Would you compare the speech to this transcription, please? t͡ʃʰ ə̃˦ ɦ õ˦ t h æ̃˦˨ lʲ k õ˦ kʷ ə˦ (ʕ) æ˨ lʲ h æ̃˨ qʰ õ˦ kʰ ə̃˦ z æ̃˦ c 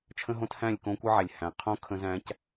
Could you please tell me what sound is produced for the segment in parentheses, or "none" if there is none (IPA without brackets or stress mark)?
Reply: ʕ